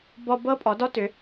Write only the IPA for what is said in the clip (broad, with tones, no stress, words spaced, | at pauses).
bɔ˧ bɤ˦˥pʼɔ˩˧dɔ˦˥tʏ˩˧